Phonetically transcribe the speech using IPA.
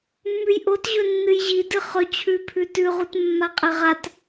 mː ʉ j ʔ o t ʑ ɵ nː ɨ j ʑ i d ɨ χ ɵ t͡ɕʰ ʉ pʰ ʉ t ʉ ʁ u t mː a qʼ e ʁ a t

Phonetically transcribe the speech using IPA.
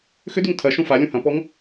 x ʏ d y ŋ tʰ ɐ ʃ ũ f a lʲ ũ h ɐ̃ p ɔ ŋ

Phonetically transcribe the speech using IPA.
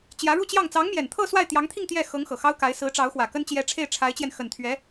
t͡ɕ j ä˧˥ ɻ u˥˧ t͡ɕ j ɑ˥˩ ŋ t͡s ɑ˧˥ ŋ m j ɛ˨˩ n t̪ʰ ɤ˥˧ s w a˥˩ ɪ̯ t̪ j ɑ˧˥ ŋ t̪ʰ i˥˧ ŋ t̪ j ɛ˥˩ x ɤ˧˥ ŋ x ɤ˨˩ x ɑ˥ ʊ̯ k a˧˥ ɪ̯ s ɹ̩˧˥ ʈ͡ʂ ɑ˧˥ ʊ̯ x w ä˨˩ k ə˥ n t͡ɕ j ɛ˧˥ ʈ͡ʂʰ e˥˩ ɪ̯ ʈ͡ʂʰ a˧˥ ɪ̯ t͡ɕ j ɛ˧ n x ə˨˩ n t̪ʰ ɥ ɛ˧˥

